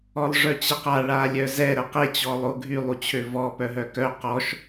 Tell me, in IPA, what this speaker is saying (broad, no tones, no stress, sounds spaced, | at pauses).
ɔ lˠ ʐ œ t͡ɕ ə q a ɭ a lʲ œ z ɛ ɾ ə q e t͡ɕ ɔ lˠ o ɡʱ y lˠ u t͡ɕʰ ø v ɔ p œ ɦ œ k œ q ɔ ʃ